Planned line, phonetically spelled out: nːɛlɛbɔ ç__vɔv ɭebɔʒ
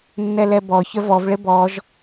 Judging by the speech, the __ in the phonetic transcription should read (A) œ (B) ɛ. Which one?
A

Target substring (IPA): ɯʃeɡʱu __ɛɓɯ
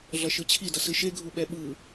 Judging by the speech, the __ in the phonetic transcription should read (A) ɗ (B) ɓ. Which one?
B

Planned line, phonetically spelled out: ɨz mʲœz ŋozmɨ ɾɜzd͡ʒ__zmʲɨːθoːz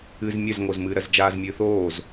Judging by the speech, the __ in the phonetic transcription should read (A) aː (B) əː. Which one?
A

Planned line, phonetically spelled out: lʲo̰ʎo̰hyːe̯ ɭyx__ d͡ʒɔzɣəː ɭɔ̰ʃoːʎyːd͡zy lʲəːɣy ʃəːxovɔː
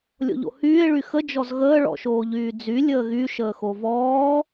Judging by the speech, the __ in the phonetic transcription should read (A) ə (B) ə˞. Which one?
A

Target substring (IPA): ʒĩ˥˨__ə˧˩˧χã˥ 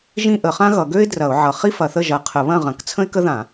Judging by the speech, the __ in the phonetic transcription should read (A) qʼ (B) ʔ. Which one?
B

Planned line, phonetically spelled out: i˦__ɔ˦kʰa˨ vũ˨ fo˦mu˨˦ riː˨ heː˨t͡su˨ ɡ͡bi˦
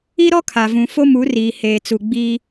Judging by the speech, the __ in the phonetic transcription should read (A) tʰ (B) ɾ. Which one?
B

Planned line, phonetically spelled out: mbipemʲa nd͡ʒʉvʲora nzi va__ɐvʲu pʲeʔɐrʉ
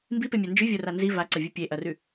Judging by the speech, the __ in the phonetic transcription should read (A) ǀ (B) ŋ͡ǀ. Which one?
A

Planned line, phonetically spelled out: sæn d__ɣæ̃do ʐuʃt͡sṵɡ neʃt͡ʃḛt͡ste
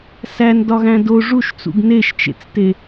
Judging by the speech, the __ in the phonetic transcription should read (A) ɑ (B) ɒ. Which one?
B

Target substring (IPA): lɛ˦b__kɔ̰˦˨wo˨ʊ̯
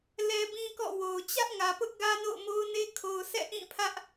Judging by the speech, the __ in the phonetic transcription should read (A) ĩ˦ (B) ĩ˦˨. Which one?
A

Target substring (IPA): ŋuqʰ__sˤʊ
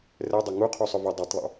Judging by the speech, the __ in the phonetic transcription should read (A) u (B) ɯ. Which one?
A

